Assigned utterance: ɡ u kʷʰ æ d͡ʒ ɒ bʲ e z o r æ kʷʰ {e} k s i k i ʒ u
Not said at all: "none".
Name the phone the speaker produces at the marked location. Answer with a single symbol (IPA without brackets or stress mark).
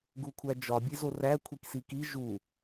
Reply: i